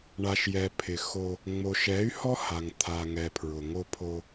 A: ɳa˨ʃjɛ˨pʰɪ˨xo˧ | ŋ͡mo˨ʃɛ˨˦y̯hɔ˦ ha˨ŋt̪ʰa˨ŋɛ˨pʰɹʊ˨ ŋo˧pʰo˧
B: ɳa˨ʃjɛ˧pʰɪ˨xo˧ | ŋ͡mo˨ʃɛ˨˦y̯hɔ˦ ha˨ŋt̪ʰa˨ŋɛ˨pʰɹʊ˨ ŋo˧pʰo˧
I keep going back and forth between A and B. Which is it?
A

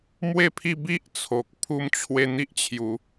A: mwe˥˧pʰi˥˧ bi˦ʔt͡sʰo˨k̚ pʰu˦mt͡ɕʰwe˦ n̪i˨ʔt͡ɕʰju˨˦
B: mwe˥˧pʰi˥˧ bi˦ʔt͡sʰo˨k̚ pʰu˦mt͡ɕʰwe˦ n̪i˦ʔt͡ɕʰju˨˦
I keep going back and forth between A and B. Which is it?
B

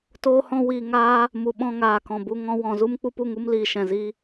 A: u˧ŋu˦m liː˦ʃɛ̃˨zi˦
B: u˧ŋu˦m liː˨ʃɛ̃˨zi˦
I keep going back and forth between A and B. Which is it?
B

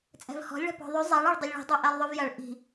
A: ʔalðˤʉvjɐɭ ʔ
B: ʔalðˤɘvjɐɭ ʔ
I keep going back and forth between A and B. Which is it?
A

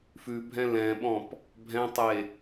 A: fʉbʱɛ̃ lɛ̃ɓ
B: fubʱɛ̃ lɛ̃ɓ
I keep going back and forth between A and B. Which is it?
A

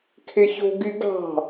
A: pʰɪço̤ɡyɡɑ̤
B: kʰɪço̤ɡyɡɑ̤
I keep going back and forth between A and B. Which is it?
B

